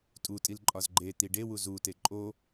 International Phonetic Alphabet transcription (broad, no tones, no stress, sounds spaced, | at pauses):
tʼ u tʼ i l ǃʼ ɒ z ɡ͡ǃ e t̪ i ɖ e w u z u t e ǃʼ o